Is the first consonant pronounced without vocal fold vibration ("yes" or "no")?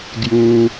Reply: no